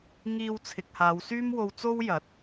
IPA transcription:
ŋ iː˧ w t͡sʰ ɪ˨ k̚ h aː˨˧ w s yː˥ m w o˧ w t͡s o˥ w j ɐ˨˥ t̚

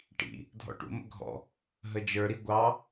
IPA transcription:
ʈ ḭ | dʱ ɔ̰ ʈ ṵ m ə̰ ɡʱ ɔ̰ | ɦ ə d͡ʒ ə˞ ɾ i ɡʷ ɑ

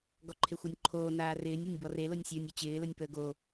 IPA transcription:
ɡ ɔ ǃʰ e xʷ ɔ nʲ ǃʰ oː n aː r ɪː nʲ e nʲ b ɔ r e l o nʲ sʲ əː nʲ ɔ t͡ɕ ɪː l ə nʲ p əː ɡ o

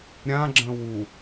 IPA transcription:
ɾʲ ã ɡ͡ǁ ə̃ w u

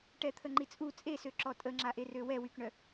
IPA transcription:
ʈ ɛ t̪ʰ ə ŋ͡ǃ i t͡sʼ u t͡sʼ e s ø ǁ ɔ tʼ ə ŋ͡ǁ a ʔ e r ø w ɛ w y k ɳ œ

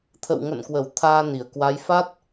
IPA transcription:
t̪ʰ ə̰˧˨ w ŋ ə̰˧˨ n k w ə˧˩ w t̪ʰ aː˧ n i˧˩ ə̯ k w a˨˦ j f a˦˥ t̚

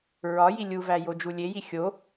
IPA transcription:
ɹ ɒ j i lʲ u v æ j o d͡ʒ u lʲ e j i xʲ o

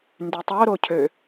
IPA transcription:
n d y tˤ o ɾ o cʰ ø

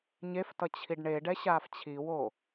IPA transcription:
ɲ e f t ʌ t͡ɕʰ i ɖ ɳ e ɖ ɛ ɕ aː f t͡ɕʰ i w o

